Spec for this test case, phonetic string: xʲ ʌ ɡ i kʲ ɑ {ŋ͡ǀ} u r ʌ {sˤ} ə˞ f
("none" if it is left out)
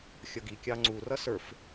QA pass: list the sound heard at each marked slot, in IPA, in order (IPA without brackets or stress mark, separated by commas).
ŋ͡ǀ, s